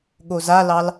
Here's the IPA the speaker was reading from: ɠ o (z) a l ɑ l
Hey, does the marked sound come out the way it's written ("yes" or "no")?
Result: yes